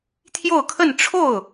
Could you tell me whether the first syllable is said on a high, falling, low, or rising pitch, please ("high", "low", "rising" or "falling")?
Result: falling